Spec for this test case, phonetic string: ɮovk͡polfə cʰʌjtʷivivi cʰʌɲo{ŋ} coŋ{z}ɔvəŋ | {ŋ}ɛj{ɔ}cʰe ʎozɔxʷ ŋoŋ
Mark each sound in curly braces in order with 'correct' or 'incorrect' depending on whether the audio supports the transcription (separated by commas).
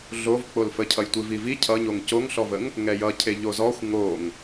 correct, incorrect, correct, incorrect